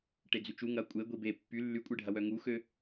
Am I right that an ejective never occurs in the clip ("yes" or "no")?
no